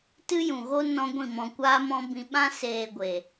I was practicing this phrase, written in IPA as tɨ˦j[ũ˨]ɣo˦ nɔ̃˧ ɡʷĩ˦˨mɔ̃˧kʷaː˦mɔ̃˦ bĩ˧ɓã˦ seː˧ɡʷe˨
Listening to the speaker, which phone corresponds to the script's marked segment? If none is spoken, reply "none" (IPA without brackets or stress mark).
ũ˨